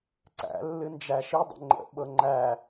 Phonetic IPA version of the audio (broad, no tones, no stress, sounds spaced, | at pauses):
ǀ æ̰ lː ɨ n d͡ʒ æ ʃ i dˤ ə̰ ŋ͡ǃ ə̰ ɓ ɤ ŋ͡ǃ æ